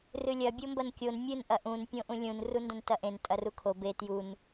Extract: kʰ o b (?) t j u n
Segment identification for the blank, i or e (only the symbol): e